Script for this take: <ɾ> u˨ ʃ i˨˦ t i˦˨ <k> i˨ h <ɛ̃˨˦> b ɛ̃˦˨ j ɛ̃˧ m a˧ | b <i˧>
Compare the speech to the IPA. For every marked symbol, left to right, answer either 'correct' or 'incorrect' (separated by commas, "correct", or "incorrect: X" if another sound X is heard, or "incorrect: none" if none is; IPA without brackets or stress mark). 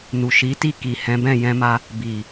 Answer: incorrect: n, correct, correct, incorrect: i˨